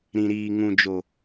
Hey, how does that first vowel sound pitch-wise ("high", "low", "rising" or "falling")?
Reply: low